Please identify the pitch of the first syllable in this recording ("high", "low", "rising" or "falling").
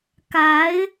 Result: rising